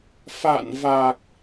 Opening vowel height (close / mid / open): open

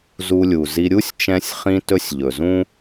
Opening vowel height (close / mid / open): close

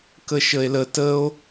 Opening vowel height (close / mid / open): mid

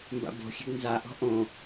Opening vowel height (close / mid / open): open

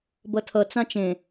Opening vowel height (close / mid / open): mid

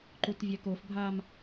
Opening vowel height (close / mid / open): close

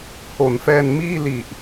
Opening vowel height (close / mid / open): mid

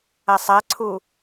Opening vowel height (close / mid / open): open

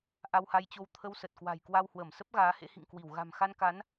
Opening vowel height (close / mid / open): open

